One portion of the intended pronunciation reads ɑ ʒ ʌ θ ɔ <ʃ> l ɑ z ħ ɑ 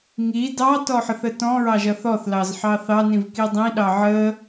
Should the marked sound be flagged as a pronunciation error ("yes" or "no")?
yes